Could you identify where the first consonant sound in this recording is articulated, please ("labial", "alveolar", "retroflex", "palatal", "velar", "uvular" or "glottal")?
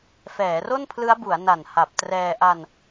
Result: labial